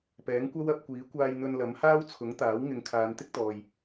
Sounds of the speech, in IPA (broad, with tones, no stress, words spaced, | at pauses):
pɛː˨˥ŋkʷɐ˥wɐ˨˥p̚kʷiː˨˥ kʷaː˧jn̪ɵ˧nlɐ˨˥m haː˥wt͡sʰʊ˨˥ŋt̪aː˨˥wŋɪ˨˧ŋ kʰaː˨˧nt̪ɪ˥k̚t̪ɔː˨j